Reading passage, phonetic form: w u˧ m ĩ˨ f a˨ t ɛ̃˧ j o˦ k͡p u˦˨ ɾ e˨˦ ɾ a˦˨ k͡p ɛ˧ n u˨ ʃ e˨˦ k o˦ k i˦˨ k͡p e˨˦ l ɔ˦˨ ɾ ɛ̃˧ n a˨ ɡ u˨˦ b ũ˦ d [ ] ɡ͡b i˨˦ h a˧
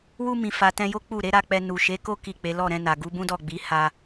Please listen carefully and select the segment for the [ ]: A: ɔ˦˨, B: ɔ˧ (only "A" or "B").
A